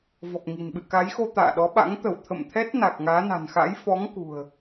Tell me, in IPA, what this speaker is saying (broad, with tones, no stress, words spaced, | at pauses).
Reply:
vɔ˨˩k̚ŋi̤˨˩n ɓɨ̰˧˨ka˨˦jxo˧ t̪a̰ː˧˨ɗɔ˨˦ɓa̰˧˥ŋ t̪ə˧˩wt̪ʰə̰˧˨mt̪ʰɛ˦˥t̚ na˨˩k̚ŋaː˨˦na̤˨˩nxa̰˧˥j fɔ˨˦ŋ kṳ˨˩ə̯